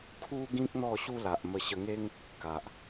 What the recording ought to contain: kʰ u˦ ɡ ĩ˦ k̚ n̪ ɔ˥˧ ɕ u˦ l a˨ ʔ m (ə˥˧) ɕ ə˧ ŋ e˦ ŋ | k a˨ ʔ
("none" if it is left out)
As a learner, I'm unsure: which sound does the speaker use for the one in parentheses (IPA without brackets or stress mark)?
ə˧